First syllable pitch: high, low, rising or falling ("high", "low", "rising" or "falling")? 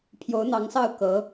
rising